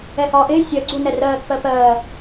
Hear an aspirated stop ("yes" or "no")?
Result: no